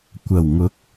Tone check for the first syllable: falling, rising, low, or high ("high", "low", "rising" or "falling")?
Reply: low